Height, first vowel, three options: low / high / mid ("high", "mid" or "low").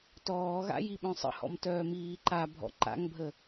mid